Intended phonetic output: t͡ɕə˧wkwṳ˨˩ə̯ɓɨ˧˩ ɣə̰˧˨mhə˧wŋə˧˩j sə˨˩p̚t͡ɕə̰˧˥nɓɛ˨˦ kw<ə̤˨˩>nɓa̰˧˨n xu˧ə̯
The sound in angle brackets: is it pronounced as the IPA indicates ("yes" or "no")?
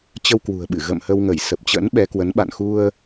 no